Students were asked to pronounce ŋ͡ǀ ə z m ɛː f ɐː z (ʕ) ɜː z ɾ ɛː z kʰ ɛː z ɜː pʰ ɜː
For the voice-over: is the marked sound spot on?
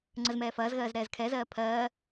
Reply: no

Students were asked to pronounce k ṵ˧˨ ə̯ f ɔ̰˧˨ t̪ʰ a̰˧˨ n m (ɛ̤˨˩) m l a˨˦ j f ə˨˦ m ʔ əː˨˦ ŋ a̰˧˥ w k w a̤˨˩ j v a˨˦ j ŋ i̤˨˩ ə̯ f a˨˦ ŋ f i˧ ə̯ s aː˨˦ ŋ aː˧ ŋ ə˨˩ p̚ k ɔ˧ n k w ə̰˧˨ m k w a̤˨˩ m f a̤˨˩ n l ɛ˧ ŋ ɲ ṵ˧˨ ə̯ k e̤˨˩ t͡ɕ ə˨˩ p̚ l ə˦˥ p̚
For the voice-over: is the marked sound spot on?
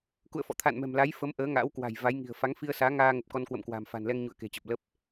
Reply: yes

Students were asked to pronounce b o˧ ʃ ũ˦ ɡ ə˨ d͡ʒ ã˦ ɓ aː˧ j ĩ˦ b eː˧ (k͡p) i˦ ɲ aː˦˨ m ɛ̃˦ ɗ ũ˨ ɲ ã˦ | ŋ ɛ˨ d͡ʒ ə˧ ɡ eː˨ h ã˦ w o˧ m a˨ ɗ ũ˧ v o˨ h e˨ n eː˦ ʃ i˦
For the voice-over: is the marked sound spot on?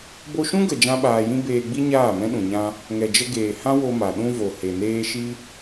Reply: no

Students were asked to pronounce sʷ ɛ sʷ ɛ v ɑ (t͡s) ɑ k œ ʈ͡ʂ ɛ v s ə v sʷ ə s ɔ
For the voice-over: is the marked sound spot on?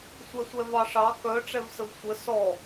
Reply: no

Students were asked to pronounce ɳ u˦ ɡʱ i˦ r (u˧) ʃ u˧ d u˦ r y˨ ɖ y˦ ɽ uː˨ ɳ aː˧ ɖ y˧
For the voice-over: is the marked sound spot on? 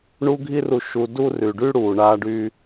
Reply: yes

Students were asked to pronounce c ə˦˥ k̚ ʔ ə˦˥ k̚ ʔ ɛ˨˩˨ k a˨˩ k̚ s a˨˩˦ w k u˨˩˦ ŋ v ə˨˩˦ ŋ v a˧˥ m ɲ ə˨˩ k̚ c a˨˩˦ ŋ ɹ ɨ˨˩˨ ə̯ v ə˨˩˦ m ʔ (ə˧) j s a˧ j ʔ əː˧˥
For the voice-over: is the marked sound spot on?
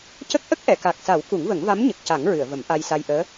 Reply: no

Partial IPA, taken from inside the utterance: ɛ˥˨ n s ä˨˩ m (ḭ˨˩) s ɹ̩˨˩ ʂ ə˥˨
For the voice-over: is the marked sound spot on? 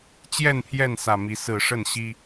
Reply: no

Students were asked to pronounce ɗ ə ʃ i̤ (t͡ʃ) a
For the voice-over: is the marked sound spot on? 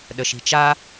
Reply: yes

